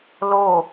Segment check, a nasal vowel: absent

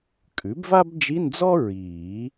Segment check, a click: absent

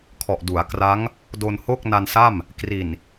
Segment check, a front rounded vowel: absent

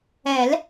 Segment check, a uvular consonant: absent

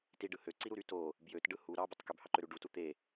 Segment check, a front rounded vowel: present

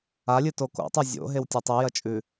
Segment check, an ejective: present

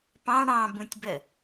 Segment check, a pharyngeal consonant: absent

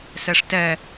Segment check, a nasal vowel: absent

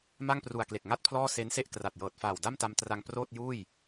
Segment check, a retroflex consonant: absent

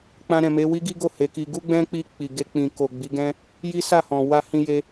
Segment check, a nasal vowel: present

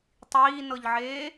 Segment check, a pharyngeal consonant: present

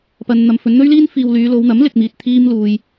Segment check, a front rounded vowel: present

